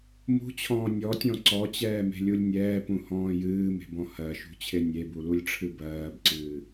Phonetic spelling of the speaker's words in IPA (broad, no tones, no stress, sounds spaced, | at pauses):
m ṳ t͡ɕʰ ɔ̃ː nʲ ɔ tʲ ɔ̃ ǀ ɔ t͡ɕ ɛː m e̤ lʲ u lʲ nʲ ɛː p ũ h ɔ̃ː j ɨː m e̤ b ɔ̃ h ɜ ʃ ṳ t͡ɕʰ e nʲ e b u l u lʲ ʈ͡ʂʰ ɨ b ɜː b ǀ ɨː